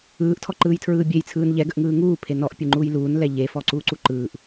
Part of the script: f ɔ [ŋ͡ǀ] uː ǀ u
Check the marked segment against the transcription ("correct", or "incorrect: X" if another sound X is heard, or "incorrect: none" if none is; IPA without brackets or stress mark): incorrect: ǀ